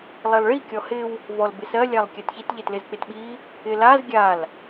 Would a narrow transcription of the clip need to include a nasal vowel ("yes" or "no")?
no